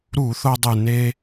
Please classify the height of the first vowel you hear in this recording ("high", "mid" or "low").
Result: high